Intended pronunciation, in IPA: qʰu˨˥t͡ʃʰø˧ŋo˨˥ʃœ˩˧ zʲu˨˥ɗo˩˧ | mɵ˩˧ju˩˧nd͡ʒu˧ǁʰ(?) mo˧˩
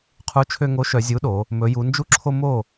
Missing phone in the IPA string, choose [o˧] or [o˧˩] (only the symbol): o˧